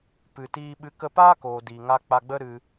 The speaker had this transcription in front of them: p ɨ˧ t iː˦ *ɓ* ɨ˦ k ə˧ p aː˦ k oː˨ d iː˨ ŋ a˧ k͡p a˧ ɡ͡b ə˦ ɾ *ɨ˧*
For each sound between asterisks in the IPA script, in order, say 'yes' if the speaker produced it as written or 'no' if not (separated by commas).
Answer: yes, yes